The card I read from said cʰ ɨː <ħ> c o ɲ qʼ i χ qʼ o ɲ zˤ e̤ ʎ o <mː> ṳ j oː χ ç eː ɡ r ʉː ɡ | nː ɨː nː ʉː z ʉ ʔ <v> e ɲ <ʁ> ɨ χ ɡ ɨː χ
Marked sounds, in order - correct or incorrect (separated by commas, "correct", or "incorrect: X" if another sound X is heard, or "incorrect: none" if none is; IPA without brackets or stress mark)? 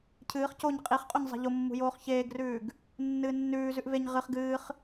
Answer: incorrect: χ, correct, correct, correct